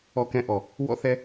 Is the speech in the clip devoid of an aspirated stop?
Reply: yes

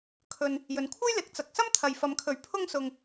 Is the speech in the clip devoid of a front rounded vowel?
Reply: yes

